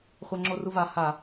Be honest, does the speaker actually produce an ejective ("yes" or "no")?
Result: no